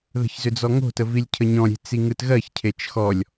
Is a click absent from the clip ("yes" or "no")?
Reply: yes